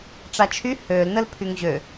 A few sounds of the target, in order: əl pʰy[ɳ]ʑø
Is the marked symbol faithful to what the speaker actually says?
no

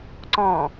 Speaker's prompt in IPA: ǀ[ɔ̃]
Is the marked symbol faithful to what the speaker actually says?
yes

